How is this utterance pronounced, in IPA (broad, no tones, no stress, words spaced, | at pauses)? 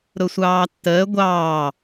ɾʊsʷɑːtːəː ɡʷɑː